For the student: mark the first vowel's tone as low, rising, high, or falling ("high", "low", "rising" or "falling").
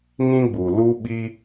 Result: high